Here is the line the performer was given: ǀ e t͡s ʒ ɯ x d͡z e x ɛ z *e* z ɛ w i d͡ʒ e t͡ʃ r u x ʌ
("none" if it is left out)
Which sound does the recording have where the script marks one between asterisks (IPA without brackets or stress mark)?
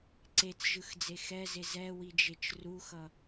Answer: e